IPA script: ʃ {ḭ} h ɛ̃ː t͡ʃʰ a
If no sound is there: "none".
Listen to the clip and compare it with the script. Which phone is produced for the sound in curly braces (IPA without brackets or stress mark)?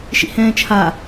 ḭ